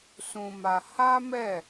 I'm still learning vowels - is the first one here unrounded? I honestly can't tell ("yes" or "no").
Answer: no